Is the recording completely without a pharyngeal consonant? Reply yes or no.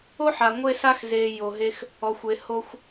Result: no